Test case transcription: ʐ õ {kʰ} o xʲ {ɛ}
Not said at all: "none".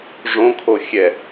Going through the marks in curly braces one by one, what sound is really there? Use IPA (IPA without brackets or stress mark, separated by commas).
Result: kʰ, ɛ